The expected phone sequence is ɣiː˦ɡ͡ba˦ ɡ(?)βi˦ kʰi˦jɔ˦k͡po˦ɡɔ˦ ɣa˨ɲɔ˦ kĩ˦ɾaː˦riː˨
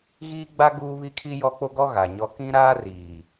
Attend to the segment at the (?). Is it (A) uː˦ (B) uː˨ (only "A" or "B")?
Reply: A